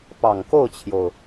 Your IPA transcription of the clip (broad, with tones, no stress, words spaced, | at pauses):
pɑ˨˩ŋko˥˩ʊ̯t͡ɕʰjo˩ʊ̯